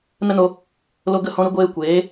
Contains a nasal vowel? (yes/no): yes